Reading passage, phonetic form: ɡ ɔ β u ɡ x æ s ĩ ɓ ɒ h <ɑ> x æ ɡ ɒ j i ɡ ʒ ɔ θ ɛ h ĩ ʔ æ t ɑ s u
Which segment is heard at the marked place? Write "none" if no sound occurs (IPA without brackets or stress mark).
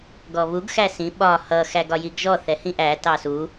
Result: ʌ